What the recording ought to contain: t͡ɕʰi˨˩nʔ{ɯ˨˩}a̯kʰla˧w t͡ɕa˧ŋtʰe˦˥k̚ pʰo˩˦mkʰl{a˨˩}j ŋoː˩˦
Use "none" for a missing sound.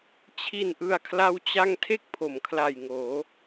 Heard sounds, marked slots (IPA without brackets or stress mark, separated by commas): ɯ˨˩, a˨˩